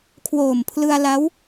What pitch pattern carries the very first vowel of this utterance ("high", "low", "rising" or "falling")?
low